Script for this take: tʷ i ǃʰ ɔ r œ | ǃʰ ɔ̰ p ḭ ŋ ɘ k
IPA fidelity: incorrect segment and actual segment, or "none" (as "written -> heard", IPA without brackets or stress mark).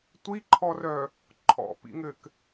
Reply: none